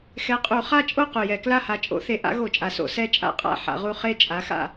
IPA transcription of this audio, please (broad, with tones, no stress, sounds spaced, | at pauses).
x ɛ˨˥ qʼ u˧˩˧ χ a˥˨ t͡ʃʼ o˥˨ q u˨˩ j ɛ˧˩˧ k l a˥˨ h a˨˥ t͡ʃʼ o̰˨˥ θ e˨˥ ʔ a̰˨˥ ɣ o˧˩˧ t͡ʃʼ a˨˩ s o̰˧˩˧ s ɛ˥˨ t͡ʃʼ a̰˥˨ qʼ a̰˥˨ ħ a̰˨˥ ʁ u˥˨ χ e˥˨ t͡ʃʼ a˨˥ x a̰˥˨